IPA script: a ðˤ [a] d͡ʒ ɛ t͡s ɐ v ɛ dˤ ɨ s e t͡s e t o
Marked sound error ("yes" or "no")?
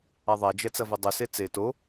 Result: no